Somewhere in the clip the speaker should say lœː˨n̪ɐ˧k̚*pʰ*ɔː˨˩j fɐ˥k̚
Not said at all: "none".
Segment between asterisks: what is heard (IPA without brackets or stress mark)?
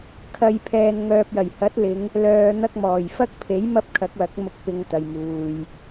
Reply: m